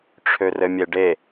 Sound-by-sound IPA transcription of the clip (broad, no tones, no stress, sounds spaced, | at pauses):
ʈ͡ʂʰ ø r ɘ mʲ e ɖ e